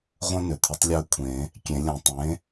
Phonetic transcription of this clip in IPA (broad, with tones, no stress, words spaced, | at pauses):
ʁʷœ̃˦ nʏ˩t̪ʰə˩˥tˤ lʲœ˦kʷʰẽ˨˩˦ | kʲẽ˨˩˦lʲœ̃˨˩˦ tˤẽ˩˥